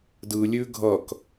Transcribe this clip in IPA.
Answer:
d ɯ lʲ ʉ ɡʱ ʌ k

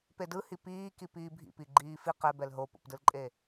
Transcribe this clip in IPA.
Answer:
p e d ɯ h i p iː k i p iː bʱ ḭ p i ɡ͡ǃ iː f i q ɛ b ɛ l ɦ o p o̰ p d ɯ l ǃʼ e

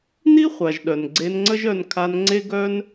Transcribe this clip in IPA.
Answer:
n i˦ χʷ a˨ ʒ ɗ œ˨ n ɡ͡ǀ e˧ n ŋ͡ǀ ə˦ ʒ œ˧ n kʰ a˧ n ŋ͡ǀ e˦ ɡ œ˦ n

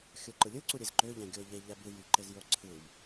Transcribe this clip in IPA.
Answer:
xʲ o ǃ ɯ lʲ ɯ ǀ u ɾʲ e z ǃ ø ʎ æ̃ ɡʲ o ʎ e ʎ æ b ɯ j y ǃ e z j o ǀʰ ɯ m

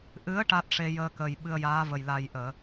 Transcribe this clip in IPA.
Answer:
ʔ ɨ˧˥ ə̯ ʈ a˦˥ t̚ ʂ e˧ j əː˧ k əː˨˩ j ɓ ɨ˧ ə̯ j aː˧˥ v ə˨˩ j l a˨˩ j ʔ əː˨˩˨

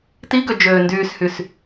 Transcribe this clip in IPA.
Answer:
t i ɡ ø d͡ʒ øː n d yː s h y s

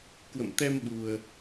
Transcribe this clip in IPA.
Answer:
k w ə̰˧˨ m t̪ ɛ˧ m ɓ u˧ ə̯

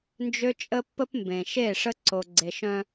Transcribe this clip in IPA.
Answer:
n d͡ʒ ø˦ t͡ʃʼ ə˦ pː ə˦ p m b ẽ˨ ʃ e˦˨ ʂ ə˦ ǀ o˨ ɡ͡ǀ e˨ ʃ œ̃˦

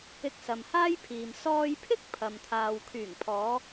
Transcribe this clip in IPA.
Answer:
ɪ˧ k̚ s ɐ˨ m h aː˥ j pʰ iː˨ m s ɔː˧ j pʰ ɪ˥ k̚ pʰ ɐ˨ m t̪ʰ aː˨ w kʰ yː˨˩ ŋ pʰ ɔː˨˧

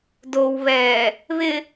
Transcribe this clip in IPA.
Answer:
d o w β ɛː | β ɪ

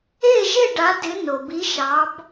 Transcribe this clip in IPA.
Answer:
e˥˨ ʒ e˥˨ ɖ a˨˦ d ɪ˨˦ n o˩ b i˨˦ ʃ ɑ˨˦ b

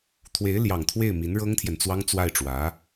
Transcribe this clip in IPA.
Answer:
t̪ʰ w e˧˥ ɪ̯ l j ɑ˨˩ ŋ t̪ʰ w e˥˩ ɪ̯ m i˧˥ n ɻ ɤ˥ ŋ t̪ʰ j ɛ˨ n t͡s w ɑ˥ ŋ t͡s w a˥˩ ɪ̯ ʈ͡ʂ w ä˧˥

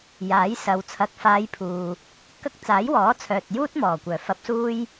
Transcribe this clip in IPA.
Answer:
j aː˨˥ j s ɐ˨˧ w t͡sʰ ɐ˨ k̚ f aː˨˧ j pʰ uː˨ | k ɐ˥ k̚ t͡s aː˨˥ j w ɔː˨˥ t͡sʰ œː˨ t̚ j uː˥ t̚ m ɔː˨˩ kʷ œː˨˩ f ɐ˧ p̚ s uː˥ j

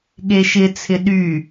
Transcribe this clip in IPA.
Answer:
ɠ e ʃ ɪ t͡sʰ ɪ ɗ y

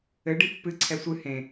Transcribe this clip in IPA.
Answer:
ɘ ɖ i pː ɨ ǀʰ ɛ sʷ ɨ h ẽ

